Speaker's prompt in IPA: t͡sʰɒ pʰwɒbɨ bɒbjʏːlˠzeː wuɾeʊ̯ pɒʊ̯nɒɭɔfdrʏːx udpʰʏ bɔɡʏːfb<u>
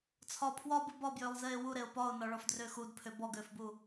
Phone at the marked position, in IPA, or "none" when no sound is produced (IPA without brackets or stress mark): u